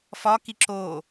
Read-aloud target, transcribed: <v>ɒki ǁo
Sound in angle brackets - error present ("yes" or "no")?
yes